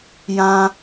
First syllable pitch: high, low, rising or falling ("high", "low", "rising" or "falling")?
high